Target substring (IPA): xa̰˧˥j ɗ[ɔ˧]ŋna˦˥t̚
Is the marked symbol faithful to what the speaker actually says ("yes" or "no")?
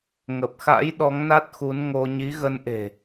no